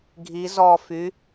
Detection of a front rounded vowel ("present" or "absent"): present